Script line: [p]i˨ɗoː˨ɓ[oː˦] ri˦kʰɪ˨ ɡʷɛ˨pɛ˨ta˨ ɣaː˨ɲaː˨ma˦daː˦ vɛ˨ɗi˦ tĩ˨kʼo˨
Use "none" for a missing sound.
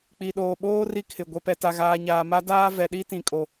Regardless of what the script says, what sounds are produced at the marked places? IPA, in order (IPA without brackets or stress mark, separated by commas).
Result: k͡p, oː˦